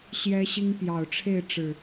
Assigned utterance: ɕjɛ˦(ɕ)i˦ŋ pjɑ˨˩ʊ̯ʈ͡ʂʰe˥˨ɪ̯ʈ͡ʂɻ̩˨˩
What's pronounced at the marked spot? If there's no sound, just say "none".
ɕ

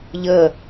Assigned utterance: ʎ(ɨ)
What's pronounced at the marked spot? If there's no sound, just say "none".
ə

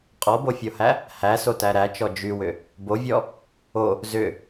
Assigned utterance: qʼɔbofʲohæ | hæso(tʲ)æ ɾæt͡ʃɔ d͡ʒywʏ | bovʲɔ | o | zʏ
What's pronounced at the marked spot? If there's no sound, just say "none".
t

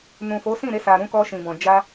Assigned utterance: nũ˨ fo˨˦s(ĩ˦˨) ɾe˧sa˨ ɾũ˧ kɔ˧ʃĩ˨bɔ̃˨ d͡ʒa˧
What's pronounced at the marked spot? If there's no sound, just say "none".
ĩ˦˨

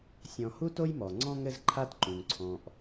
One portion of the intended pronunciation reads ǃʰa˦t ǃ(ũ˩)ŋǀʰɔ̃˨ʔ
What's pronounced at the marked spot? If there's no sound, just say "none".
ũ˩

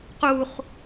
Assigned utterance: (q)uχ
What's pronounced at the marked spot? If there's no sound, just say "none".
q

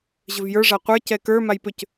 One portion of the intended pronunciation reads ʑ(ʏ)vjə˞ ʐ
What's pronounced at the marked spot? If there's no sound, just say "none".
ʏ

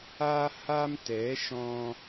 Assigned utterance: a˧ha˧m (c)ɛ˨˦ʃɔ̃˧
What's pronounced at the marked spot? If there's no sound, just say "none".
t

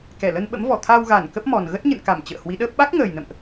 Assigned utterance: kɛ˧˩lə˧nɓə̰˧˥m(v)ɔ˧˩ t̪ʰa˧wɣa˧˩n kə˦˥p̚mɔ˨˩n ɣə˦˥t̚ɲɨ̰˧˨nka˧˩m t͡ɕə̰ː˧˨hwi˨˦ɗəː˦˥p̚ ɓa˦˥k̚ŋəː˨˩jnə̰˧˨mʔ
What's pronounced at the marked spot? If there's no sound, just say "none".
v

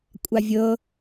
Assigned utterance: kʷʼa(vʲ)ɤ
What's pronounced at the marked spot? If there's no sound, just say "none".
vʲ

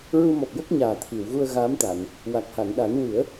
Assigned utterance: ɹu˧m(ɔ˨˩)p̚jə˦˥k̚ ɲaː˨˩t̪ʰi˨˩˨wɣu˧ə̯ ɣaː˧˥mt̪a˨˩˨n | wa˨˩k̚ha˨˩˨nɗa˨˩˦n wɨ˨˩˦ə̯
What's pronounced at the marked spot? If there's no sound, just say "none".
ɔ˨˩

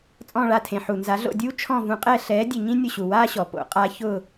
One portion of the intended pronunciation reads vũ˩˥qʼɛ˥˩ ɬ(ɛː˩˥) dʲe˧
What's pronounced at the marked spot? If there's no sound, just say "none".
ɛː˩˥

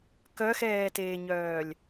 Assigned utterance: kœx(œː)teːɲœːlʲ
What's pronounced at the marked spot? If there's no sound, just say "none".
ɛː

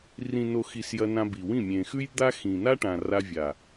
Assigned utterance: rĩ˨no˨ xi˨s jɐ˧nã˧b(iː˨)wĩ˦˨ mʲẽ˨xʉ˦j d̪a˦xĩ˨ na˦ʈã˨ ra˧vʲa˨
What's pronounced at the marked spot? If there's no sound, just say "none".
i˨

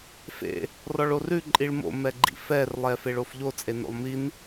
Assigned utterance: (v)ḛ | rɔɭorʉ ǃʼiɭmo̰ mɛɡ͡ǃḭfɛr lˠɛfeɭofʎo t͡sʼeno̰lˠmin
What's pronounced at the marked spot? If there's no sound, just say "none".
f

